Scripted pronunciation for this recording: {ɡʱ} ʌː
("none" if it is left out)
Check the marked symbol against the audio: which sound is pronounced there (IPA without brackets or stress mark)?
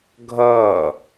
ɡʱ